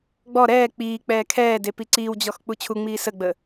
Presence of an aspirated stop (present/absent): present